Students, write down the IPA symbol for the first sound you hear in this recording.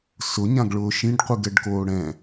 s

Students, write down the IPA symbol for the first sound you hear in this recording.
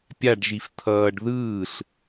pʲ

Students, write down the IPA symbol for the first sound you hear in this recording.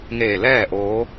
ŋ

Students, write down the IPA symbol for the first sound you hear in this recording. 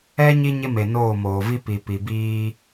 ɛ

